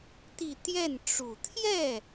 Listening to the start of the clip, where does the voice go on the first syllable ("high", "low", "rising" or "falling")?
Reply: falling